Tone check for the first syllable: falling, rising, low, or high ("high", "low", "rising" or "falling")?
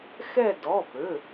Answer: falling